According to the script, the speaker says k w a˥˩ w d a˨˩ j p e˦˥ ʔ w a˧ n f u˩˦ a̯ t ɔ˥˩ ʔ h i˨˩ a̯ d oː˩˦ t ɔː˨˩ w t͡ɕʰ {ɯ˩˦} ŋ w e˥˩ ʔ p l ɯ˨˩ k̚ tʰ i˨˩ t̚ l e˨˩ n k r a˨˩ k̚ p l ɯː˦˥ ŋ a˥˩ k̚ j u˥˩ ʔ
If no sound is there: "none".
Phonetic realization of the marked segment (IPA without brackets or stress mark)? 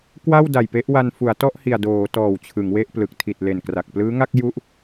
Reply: ɯ˩˦